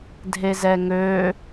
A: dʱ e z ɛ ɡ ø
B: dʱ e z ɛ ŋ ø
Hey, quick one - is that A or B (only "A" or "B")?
B